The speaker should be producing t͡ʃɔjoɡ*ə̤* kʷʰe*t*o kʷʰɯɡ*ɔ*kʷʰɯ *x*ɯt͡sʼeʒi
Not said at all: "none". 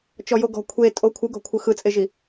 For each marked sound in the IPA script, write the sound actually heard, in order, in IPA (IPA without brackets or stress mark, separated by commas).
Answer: ɔ̤, tʼ, ɔ̤, x